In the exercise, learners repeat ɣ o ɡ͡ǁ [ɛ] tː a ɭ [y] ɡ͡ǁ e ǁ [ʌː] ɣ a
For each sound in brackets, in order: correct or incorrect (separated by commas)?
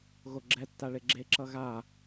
correct, incorrect, incorrect